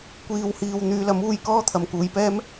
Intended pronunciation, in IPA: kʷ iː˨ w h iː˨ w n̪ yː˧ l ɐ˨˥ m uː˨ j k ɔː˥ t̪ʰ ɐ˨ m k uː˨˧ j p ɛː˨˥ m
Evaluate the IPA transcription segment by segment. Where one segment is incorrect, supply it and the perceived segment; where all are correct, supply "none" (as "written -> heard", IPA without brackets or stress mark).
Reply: ɛː˨˥ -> ɛː˥